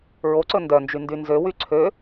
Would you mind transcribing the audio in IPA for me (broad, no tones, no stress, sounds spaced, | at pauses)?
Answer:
ɹ o ǀ ɵ n d œ n d͡ʒ y n d y n z ø w y ǀʰ ø